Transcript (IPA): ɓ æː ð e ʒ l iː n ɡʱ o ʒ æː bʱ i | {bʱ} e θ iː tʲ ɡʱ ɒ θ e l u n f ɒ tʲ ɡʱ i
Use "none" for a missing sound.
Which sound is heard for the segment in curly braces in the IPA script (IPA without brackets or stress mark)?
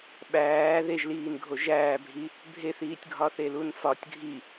bʱ